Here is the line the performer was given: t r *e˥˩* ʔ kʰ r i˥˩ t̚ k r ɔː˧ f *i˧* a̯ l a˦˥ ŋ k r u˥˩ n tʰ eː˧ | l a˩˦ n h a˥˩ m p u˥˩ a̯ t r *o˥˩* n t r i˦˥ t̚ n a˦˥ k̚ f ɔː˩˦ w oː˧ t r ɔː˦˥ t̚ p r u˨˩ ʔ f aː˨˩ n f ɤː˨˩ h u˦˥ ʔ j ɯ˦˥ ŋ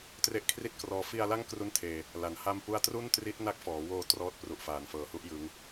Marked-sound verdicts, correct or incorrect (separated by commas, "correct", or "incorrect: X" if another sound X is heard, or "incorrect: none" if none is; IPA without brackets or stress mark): incorrect: e˦˥, correct, incorrect: u˥˩